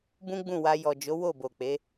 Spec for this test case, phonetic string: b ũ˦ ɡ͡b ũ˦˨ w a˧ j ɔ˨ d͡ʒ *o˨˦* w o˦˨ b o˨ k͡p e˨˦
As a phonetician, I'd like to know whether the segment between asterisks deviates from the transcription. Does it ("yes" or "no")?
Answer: no